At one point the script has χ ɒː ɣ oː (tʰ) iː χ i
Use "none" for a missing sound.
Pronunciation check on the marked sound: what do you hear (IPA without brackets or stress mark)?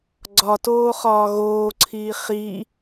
ǀʰ